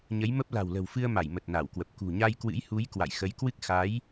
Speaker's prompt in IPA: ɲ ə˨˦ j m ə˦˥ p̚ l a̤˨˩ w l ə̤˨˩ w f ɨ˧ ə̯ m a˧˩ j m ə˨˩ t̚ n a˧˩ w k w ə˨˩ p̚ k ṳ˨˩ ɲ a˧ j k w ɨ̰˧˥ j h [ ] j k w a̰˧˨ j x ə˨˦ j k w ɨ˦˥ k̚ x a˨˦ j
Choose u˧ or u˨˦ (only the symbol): u˨˦